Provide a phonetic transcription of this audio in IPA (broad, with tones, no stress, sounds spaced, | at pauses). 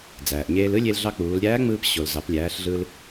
d͡z æː˩ ʔ ɲ eː˧ l ɯ˥ lʲ e˧ l ɮ ɑ˧ k͡p uː˩˧ l ɾʲ æː˧˥ ŋ͡m ɯː˧ p ɕ o˩ l z ɑ˩˧ p lʲ æː˩˧ ɬ ɮ ɯ˧ l